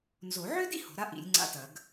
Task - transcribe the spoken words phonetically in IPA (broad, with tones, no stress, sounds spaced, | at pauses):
n z o˨˩˦ ʕ ø˥ d ḭ˥ h o̤˩˥ ɾ a˥ ʔ ḭ˨˩˦ lʲ ŋ͡ǀ a̰˦˨ t ɐ˨˩˦ ɡ